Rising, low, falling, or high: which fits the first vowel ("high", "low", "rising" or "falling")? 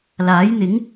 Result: rising